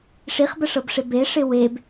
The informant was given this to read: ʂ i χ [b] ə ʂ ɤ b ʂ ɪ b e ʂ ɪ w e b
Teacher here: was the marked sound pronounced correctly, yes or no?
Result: yes